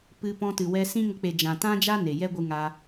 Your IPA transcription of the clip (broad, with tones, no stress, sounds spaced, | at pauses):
p ɨ˧ p ɔ̃˧ t ɨ˨ w ɛ˧ s ĩ˦ ŋ ə˧ k͡p e˨ d͡ʒ ã˨ t ã˦ d͡ʒ a˦ n e˨ j ɛ˦ ɡʷ ɨ˧ ŋ a˧